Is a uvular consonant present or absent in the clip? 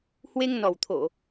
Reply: absent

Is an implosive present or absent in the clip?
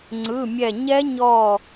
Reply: absent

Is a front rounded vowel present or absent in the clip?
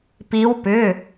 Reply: present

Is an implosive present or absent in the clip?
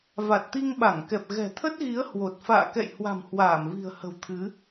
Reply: present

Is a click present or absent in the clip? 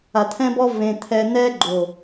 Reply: present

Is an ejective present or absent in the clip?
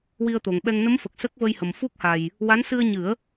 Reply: absent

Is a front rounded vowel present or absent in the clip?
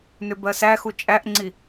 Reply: present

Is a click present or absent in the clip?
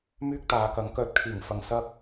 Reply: absent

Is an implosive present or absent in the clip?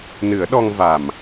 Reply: present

